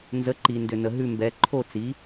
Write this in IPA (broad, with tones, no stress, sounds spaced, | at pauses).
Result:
n z ə˩˥ ǃ i˩ n d ʏ˩ n ə˩ ɦ ʉ˥˩ m b ɛ˩˥ ǃʰ o˥˩ t͡s i˩˥